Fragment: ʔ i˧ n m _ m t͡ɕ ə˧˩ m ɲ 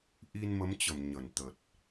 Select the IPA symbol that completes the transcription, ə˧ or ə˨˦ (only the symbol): ə˨˦